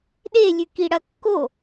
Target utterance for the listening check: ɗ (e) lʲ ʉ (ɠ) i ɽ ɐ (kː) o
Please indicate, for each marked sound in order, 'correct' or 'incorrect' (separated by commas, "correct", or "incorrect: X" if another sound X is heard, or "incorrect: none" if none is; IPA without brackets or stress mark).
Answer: correct, incorrect: k, correct